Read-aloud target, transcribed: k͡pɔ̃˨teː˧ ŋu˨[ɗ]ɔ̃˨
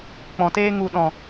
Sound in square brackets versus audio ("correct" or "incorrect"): correct